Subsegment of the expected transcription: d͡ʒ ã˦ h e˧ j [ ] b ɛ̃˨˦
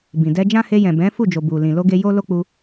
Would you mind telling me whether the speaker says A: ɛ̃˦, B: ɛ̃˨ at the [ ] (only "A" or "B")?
B